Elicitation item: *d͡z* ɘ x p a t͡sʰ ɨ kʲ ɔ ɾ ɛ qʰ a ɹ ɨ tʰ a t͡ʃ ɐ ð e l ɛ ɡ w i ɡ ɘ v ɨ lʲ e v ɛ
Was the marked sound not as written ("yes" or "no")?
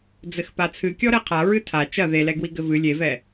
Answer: no